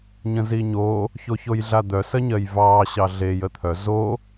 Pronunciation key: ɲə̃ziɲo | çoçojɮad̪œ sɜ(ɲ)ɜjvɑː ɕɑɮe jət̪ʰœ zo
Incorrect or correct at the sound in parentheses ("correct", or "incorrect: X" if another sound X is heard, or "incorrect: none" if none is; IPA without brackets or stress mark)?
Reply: correct